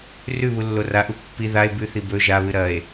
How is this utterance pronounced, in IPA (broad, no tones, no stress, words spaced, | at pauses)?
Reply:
rʉ βulːoraʔu pːi ðae̯ bʉθi bɵ ʒaβɨ ɾɐe̯